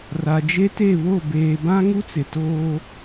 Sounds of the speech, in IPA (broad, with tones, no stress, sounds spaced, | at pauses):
r a˨ d͡ʒ e˦ t e˦˨ β o˦˨ b eː˨ b ã˦ ŋ u˦ t͡s ɪ˨ t oː˦